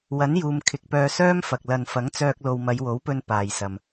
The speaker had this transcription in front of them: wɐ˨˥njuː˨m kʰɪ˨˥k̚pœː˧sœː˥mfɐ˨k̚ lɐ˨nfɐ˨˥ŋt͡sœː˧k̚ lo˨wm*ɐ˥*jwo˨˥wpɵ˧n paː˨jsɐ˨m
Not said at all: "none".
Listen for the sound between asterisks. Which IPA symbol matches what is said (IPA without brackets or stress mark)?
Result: ɐ˨˧